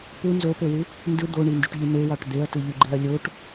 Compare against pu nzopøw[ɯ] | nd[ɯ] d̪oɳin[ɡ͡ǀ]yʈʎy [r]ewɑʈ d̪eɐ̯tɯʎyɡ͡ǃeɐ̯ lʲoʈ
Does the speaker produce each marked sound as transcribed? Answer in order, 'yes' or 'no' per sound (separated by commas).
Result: yes, yes, no, no